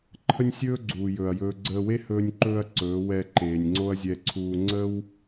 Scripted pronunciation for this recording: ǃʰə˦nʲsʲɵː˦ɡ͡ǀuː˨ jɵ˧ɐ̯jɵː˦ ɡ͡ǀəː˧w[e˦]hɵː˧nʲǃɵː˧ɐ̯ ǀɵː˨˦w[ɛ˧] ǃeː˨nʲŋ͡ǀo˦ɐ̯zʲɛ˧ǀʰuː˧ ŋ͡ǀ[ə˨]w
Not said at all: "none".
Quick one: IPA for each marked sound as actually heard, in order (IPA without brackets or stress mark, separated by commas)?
e˦, ɛ˧, ə˦